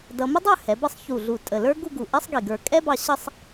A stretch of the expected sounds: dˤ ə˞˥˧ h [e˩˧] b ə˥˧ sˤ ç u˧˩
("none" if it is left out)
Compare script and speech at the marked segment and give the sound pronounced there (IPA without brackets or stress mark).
ɛ˩˧